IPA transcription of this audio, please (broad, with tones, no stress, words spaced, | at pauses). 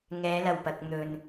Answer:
ŋɛː˨˧lɐ˨˩wpɐ˨k̚ n̪ɵ˨n